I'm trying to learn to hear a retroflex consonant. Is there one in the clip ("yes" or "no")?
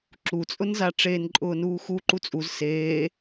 yes